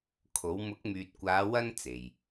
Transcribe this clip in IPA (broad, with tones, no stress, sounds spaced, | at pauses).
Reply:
kʰ o˨˥ w m ʊ˨˥ k̚ m yː˨ t̚ kʷ aː˨˧ w ɐ˥ n t͡s e˨ j